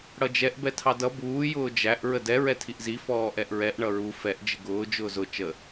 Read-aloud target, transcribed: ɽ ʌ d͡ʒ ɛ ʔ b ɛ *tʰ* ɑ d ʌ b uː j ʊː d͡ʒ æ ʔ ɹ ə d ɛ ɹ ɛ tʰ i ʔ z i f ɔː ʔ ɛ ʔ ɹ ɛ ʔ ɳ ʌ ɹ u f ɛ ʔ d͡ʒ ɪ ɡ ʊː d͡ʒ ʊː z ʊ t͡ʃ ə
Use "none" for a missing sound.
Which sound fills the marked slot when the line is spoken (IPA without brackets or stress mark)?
tʰ